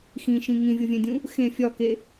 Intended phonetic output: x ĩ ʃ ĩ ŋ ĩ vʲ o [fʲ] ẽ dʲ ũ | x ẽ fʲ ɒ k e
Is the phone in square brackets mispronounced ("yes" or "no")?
yes